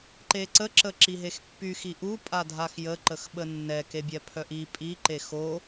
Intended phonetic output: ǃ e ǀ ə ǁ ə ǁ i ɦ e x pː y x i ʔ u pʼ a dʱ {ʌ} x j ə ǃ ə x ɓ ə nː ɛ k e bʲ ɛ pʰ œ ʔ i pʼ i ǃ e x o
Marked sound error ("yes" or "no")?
yes